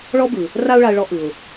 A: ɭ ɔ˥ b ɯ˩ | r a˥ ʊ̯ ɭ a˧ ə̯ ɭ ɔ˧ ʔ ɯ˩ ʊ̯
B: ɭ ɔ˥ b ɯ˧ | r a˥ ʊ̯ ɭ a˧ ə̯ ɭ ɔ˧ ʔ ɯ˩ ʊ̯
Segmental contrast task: A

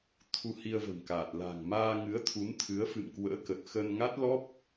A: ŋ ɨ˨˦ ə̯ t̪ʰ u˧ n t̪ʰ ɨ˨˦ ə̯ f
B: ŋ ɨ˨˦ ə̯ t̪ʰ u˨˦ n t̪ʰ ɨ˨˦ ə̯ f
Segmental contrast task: B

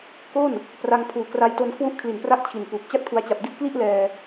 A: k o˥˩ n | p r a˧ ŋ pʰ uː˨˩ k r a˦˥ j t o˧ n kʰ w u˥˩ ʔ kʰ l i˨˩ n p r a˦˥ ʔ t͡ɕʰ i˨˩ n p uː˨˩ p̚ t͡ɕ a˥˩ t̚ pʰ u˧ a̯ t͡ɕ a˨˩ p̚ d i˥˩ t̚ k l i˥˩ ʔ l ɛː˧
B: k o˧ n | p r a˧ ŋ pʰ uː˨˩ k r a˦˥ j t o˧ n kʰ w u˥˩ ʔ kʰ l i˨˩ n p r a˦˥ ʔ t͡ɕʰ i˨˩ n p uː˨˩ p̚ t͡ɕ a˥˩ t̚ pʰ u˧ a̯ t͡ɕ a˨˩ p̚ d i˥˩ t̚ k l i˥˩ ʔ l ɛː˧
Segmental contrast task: A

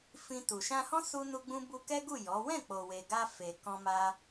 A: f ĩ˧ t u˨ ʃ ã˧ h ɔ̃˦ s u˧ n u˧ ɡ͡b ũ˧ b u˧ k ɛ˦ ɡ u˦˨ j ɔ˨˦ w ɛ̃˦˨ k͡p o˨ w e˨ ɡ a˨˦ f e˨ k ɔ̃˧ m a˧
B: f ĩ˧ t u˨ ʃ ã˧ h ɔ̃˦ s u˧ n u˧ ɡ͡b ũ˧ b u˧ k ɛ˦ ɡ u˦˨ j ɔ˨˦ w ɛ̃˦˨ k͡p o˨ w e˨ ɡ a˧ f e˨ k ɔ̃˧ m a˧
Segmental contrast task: B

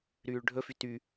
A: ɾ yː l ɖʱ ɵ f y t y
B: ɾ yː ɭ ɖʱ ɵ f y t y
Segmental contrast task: B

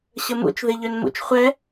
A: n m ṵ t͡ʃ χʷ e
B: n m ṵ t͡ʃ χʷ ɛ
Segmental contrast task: B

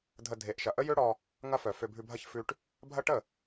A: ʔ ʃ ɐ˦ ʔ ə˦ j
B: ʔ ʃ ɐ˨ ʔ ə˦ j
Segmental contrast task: B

